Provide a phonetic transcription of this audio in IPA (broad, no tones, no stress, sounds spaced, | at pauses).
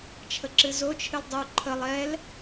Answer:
t͡ʃʰ ə ǁ ɨ z o t͡ʃʰ ɨ l dˤ u ǃʰ ə lˠ ɛ l